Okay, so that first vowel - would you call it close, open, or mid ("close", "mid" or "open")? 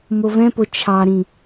mid